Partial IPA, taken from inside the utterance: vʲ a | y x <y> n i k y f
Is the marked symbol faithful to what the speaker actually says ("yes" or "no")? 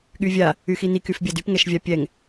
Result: no